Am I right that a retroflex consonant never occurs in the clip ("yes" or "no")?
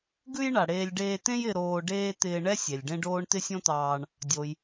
no